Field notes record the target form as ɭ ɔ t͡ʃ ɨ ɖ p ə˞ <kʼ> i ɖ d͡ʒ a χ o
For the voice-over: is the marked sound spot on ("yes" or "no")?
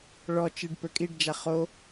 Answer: yes